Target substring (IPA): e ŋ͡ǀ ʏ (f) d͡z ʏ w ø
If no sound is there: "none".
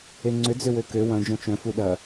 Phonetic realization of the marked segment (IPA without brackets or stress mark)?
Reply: none